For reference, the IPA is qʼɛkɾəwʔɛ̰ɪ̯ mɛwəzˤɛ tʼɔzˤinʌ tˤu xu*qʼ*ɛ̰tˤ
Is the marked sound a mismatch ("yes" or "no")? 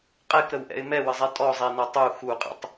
no